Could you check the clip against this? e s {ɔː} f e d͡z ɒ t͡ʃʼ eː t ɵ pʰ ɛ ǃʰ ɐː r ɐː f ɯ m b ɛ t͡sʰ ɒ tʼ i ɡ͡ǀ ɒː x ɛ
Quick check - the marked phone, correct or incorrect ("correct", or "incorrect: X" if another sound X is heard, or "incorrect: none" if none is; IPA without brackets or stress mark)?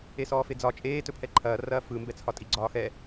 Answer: correct